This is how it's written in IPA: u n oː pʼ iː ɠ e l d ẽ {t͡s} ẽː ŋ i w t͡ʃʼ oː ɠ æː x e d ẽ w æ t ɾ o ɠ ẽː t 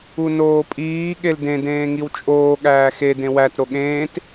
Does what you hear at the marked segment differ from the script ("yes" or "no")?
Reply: yes